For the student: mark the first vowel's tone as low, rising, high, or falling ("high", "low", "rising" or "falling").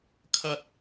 high